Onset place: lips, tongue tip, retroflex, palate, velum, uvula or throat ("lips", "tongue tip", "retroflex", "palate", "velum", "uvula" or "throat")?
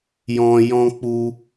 palate